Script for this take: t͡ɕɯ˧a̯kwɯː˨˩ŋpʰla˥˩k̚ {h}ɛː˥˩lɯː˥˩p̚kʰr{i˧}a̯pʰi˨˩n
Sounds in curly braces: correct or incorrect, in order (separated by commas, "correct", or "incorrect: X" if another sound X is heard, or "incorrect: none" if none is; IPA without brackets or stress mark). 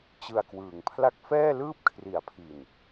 incorrect: f, incorrect: i˨˩